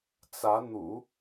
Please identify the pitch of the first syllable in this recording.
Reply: rising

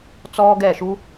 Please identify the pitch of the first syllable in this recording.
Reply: high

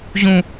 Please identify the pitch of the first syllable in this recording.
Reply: high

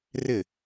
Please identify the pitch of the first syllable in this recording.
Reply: falling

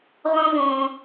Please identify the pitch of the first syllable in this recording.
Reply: high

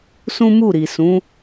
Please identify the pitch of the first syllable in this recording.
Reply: high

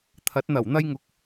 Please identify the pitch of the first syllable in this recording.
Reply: rising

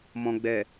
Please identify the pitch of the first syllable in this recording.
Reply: low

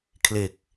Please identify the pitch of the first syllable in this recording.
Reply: low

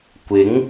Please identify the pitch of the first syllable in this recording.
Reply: rising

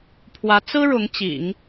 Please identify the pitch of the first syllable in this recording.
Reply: rising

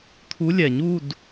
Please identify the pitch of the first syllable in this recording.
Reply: rising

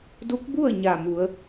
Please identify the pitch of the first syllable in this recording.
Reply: rising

